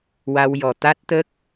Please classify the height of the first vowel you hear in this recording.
low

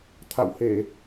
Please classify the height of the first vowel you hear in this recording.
low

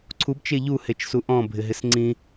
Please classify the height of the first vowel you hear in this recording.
high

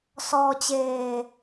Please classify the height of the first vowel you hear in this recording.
mid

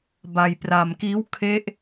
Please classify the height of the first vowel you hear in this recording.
low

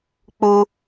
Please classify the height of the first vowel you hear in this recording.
high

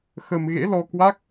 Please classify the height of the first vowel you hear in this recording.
mid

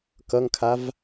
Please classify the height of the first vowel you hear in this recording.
mid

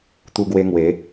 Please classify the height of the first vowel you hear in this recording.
high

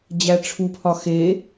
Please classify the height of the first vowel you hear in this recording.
low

